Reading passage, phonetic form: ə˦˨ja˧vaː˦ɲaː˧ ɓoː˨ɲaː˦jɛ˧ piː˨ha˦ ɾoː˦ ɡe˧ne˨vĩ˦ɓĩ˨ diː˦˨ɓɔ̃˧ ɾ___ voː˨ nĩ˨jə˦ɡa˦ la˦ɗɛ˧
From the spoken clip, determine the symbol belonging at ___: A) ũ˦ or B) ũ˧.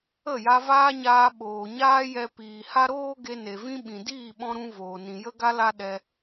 B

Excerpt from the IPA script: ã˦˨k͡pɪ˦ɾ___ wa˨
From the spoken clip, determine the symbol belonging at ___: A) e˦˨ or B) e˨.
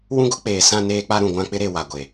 B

